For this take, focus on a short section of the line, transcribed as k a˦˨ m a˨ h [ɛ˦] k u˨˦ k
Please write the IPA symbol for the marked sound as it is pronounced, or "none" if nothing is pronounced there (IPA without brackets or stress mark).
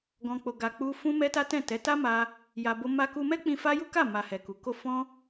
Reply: ɛ˨